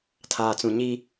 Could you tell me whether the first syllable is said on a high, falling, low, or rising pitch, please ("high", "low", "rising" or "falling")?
low